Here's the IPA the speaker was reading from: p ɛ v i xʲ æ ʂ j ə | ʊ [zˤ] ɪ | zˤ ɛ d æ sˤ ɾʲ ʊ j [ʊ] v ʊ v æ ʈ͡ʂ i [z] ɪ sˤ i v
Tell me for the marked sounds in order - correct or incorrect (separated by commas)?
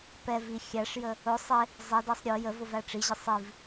incorrect, incorrect, incorrect